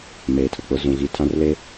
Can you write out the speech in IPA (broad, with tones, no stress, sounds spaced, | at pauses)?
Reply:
m eː˨ tʰ ʊ˨ k͡p ʊ˦ z ũ˨ ɣ i˦ tʰ ã˦ r l e˦